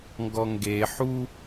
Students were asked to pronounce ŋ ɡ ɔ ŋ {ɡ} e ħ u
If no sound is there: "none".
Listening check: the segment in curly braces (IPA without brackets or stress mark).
ɡ